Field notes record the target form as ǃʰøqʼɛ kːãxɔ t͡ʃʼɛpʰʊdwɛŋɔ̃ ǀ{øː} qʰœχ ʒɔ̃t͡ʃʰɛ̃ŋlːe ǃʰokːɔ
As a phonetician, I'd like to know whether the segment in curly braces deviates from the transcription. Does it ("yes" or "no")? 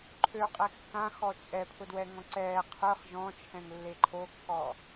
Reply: yes